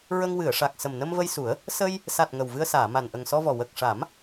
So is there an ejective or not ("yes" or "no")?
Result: no